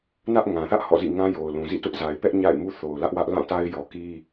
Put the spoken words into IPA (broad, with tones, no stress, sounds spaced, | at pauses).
n ä˦ ʔ ŋ ã˨ θ ä˦ ʔ h ɔ̰˦˨ z ḭ˦˨ ŋ ã˦ j o˨ ʊ̯ l ũ˨ z ḭ˦˨ t ʊ˦ ʔ z a˨ ɪ̯ p ɛ˦ ʔ ɲ a̰˦˨ ɪ̯ m u˦ θ o˨ ʊ̯ l ä˦ ʔ w ä˦ ʔ l ã˦˨ t a˦ ɪ̯ j ɔ˨ k i˦